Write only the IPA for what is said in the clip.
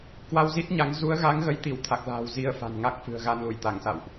k w a˧ w z i˦˥ t̚ ɲ a˨˦ ŋ z u˨˦ ə̯ ɣ a˨˦ ŋ ɣ ə˨˦ j t̪ i˧˩ w t̪ʰ a˨˩ k̚ l a̤ː˨˩ w z i˧ ə̯ f a̤˨˩ n ŋ a˦˥ k̚ f ɨ̤˨˩ ə̯ ɣ a˧ n l u˧˩ j t̪ a˧˩ ŋ s a̰˧˨ w ʔ

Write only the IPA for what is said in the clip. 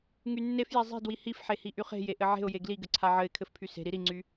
ŋ y nː e f j e zˤ i̤ d w i h i f ħ e h i ʔ y χ e̤ j e ʔ ɘ ʕ e̤ ʊ̯ j e ɡ l i ɡ ɘ ǀʰ a ʕ ɘ ɪ̯ kʰ ɘ f pʰ y s e̤ ɾ i ɾ i ŋ͡ǀ y

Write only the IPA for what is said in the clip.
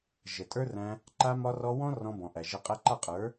ʒ ə˨ tʼ ə˞˦ r æ̃˧ | ǃ a˧ m ɒ˧ r ɔ˧ w ɔ̃˦ r ɔ̃˧ b ɔ̃˨ ʔ æ˨ ʒ ə˧ qʼ æ˧ ǃ a˦˨ qʼ ə˞˨˦

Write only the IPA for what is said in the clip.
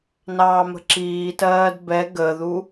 n ɑː m ə̤ ǁ iː t ɜː d b ɛ ɡ ə ð u

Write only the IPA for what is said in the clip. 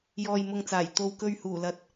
j ɔː˨ j m ʊ˨ ŋ t͡s aː˨˩ j t̪ o˨˧ w k ɵ˧ ɥ h uː˨˩ l ɐ˨˥ t̚

